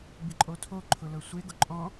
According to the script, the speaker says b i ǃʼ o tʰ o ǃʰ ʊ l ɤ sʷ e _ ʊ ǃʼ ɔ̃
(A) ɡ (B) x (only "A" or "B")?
A